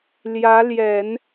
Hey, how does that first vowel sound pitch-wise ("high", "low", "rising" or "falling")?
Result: rising